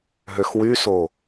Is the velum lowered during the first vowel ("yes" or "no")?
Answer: no